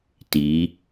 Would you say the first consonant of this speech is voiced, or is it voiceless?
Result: voiceless